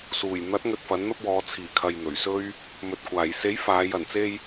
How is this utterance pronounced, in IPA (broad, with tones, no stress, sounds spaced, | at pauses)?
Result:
s uː˨˩ j n̪ ɐ˨˥ t̚ ŋ ɵ˧ t̚ f ɐ˨˥ n n̪ ɐ˥ p̚ w ɔː˨˧ t͡sʰ iː˨˩ kʰ ɐ˨ j n̪ ɵ˨˩ ɥ s ɵ˥ ɥ | m ɵ˨ t̚ kʷ aː˨˩ j s e˨˥ j f aː˨˧ j ɐ˨˩ n t͡s e˥ j